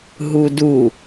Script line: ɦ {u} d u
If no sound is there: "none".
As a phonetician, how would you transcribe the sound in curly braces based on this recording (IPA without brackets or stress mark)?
u